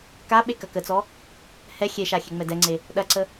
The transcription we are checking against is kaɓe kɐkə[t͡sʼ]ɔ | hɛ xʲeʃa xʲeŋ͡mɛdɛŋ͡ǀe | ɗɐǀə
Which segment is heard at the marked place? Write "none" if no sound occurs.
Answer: t͡s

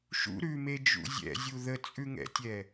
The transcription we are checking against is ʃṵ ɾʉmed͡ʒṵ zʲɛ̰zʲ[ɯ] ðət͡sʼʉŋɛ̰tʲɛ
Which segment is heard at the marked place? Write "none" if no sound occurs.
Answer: u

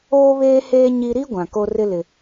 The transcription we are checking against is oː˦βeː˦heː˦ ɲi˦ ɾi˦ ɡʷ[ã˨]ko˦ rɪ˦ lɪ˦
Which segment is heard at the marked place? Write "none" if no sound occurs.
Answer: ã˨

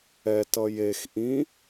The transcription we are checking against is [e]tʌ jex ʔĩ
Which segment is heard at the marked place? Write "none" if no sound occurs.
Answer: ɛ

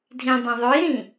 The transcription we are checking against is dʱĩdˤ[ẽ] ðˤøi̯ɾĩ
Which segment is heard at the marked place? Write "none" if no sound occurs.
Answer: ẽ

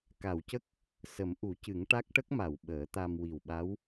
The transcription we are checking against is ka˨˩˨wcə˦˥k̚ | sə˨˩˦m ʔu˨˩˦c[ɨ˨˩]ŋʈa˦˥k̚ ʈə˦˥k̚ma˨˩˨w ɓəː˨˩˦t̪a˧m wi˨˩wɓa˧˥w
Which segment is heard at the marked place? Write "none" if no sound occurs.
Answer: ɨ˨˩˦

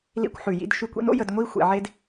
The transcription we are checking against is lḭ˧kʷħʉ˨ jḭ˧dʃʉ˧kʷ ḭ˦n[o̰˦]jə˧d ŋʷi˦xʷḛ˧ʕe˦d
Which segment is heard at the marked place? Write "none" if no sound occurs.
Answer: o̰˦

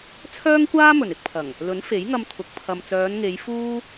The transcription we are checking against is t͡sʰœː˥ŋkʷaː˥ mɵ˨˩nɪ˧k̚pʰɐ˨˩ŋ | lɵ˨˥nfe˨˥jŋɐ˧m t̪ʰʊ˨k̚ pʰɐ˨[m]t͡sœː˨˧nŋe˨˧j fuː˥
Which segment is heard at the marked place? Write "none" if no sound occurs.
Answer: m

